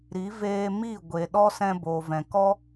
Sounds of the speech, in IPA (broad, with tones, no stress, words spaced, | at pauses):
ɾi˨˦ veː˧mi˦˨ ɡʷe˨ɗɔ˦ sɛ̃˧boː˨vɛ̃˨ kɔ˦